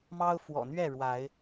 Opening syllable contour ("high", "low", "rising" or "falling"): high